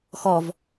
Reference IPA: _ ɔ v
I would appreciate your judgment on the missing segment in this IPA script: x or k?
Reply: x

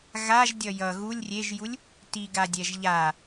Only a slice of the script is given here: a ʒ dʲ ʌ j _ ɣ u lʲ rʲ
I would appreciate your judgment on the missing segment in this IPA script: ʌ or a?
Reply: ʌ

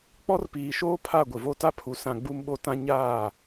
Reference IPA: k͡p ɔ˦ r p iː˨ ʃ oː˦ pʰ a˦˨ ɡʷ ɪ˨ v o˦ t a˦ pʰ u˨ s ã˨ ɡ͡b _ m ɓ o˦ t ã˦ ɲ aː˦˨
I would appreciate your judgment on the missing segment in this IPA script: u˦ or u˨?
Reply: u˦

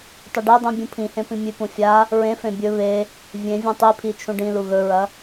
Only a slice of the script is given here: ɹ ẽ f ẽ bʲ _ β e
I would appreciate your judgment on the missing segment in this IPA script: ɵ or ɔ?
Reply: ɵ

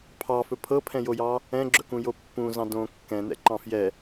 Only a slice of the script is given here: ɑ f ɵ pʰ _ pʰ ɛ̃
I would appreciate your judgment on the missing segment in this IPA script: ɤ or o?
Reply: ɤ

